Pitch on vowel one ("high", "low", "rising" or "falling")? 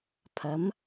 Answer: rising